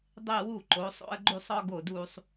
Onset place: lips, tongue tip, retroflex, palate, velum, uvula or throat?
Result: tongue tip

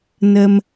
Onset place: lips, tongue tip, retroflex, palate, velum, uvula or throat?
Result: tongue tip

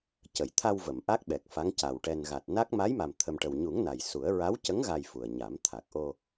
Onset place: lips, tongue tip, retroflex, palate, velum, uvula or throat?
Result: palate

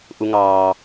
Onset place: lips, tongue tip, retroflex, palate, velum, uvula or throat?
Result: throat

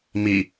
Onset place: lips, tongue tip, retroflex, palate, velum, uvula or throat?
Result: lips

